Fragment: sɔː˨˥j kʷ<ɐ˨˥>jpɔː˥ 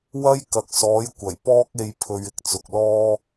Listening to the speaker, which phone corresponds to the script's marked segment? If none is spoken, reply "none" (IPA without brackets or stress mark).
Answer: ɐ˨˩